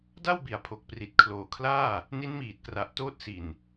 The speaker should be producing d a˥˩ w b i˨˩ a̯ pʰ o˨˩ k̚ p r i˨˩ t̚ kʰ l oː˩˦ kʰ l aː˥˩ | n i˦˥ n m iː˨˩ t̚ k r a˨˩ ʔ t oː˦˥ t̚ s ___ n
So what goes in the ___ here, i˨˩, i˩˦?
i˨˩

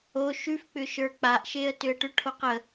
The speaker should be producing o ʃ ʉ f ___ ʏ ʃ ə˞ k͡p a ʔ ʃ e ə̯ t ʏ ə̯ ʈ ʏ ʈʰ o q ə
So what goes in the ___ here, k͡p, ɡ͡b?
k͡p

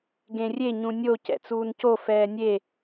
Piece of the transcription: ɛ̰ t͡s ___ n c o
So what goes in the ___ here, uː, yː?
uː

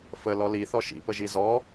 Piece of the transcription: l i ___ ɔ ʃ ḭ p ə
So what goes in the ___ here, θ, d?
θ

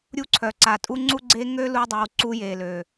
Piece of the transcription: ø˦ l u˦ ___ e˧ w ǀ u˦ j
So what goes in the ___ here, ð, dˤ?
dˤ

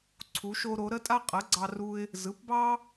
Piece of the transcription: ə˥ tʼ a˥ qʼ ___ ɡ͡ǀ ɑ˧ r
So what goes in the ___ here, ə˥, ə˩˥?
ə˩˥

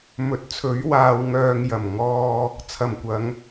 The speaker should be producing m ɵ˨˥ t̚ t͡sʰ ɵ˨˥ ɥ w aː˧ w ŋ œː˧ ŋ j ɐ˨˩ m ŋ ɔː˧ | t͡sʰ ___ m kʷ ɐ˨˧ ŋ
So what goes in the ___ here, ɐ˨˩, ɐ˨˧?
ɐ˨˩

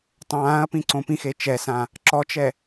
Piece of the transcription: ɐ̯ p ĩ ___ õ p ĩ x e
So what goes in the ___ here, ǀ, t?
ǀ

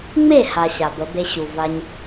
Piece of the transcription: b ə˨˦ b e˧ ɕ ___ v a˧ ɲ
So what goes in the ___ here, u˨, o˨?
u˨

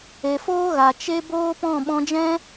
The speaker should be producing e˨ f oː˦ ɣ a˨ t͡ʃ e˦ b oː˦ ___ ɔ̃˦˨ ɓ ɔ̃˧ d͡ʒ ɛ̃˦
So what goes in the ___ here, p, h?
p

